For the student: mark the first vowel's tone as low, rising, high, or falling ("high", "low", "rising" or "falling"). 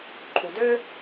low